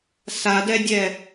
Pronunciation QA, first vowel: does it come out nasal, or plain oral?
oral